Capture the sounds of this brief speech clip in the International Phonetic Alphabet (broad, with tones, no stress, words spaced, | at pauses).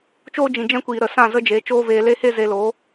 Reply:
t͡ʃoː˦d͡ʒĩ˨d͡ʒɛ̃˦kʷiː˨ ɾə˨ sã˦˨zə˦d͡ʒe˨˦ t͡ʃoː˦veː˧le˦ he˦ze˧lo˨˦